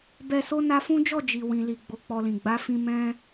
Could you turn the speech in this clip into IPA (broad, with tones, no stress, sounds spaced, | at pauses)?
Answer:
b ɛ˧ s o˦ n a˧ f ũ˦ d͡ʒ ɔ˦˨ d͡ʒ i˨ w ĩ˨ l i˨ ɡ͡b o˨˦ k͡p ɔ˧ l ĩ˨ ɡ͡b a˨˦ f ĩ˧ m ɛ̃˦